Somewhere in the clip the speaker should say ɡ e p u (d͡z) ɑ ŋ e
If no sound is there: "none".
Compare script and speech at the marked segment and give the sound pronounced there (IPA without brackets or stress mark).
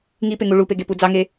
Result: d͡z